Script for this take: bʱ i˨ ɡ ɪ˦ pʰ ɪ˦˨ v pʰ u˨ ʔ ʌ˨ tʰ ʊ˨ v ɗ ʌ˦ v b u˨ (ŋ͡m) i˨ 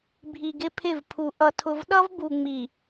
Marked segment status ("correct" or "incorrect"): correct